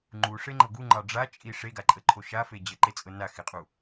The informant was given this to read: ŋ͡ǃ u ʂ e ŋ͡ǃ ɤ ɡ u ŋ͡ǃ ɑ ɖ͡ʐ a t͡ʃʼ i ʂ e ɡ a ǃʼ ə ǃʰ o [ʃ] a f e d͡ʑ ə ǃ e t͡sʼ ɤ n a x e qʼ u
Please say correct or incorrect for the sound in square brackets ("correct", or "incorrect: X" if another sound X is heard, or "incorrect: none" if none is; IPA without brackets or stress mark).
correct